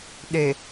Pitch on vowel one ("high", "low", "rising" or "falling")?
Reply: low